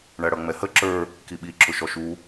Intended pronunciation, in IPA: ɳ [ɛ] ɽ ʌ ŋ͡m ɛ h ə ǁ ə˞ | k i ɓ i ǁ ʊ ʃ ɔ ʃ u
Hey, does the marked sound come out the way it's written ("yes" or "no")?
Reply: no